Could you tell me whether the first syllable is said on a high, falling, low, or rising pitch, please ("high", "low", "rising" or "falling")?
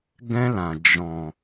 high